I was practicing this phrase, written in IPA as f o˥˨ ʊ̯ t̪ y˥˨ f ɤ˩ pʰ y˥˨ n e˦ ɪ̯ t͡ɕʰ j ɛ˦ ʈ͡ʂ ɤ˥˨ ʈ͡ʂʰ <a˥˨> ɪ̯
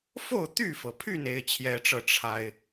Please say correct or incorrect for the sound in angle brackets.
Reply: incorrect: a˦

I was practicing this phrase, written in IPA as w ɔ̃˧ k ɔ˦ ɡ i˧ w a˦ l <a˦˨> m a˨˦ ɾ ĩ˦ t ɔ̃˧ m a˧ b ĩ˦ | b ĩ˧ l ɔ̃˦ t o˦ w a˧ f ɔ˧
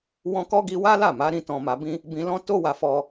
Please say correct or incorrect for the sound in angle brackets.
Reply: correct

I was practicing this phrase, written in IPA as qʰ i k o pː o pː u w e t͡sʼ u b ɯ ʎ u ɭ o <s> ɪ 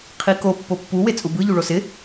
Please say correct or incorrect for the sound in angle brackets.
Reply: correct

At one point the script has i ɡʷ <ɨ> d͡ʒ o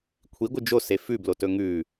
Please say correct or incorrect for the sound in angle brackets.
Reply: correct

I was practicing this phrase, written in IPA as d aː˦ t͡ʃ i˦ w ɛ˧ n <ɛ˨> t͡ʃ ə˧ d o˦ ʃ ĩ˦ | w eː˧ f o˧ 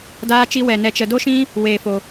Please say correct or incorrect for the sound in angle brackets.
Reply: incorrect: ɛ˧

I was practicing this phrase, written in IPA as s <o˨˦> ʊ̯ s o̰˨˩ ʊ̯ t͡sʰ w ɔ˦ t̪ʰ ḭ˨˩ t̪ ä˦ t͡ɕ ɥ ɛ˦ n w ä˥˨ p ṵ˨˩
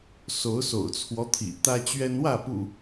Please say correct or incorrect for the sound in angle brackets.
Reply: correct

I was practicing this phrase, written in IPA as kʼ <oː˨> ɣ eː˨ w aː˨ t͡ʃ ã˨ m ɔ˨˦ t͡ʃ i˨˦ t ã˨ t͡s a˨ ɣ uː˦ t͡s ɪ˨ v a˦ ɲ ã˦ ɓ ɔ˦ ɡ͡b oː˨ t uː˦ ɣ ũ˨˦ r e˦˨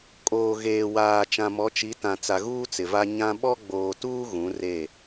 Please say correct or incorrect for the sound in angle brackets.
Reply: correct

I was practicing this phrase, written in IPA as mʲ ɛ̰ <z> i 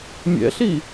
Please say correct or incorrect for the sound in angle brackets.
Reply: incorrect: ɬ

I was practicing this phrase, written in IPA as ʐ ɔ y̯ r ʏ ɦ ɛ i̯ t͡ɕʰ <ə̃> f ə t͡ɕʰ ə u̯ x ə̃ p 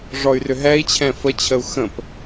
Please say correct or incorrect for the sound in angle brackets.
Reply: incorrect: ɛ̃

